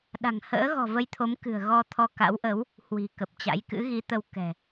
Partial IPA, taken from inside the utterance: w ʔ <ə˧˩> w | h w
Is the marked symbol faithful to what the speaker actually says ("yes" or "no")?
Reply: no